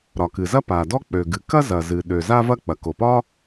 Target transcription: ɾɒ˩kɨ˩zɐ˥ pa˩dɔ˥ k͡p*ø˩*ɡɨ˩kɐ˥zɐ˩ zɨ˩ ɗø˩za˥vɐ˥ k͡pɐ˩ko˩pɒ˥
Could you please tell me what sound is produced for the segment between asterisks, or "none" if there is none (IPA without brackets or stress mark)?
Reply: ø˩